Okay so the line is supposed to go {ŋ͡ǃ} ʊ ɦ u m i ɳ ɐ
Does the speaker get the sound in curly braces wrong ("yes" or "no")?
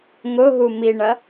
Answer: yes